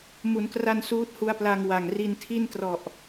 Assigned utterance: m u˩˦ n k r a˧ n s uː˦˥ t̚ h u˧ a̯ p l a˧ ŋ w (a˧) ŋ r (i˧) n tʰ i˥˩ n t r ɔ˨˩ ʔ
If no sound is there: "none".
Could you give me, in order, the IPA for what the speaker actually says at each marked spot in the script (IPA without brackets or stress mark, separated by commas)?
a˨˩, i˧